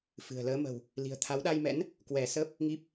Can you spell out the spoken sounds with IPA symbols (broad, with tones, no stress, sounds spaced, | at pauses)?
f ɨ̤˨˩ ə̯ l əː˨˦ m ə̤˨˩ w | l i̤˨˩ ə̯ t̪ʰ a˨˦ w ɗ a˧ j m ɛ̰˧˥ n | k w ɛ˧˩ s ə˦˥ p̚ | ŋ i˦˥ p̚